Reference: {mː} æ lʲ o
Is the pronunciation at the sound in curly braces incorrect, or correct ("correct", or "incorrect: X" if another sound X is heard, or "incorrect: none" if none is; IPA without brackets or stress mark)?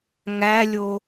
incorrect: ŋ